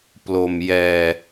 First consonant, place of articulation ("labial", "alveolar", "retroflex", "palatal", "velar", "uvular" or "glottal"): labial